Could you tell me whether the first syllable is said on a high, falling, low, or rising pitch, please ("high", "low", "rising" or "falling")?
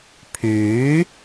rising